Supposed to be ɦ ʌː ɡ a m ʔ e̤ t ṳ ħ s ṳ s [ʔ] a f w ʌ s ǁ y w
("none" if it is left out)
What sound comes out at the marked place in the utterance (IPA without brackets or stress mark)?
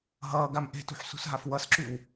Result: ɦ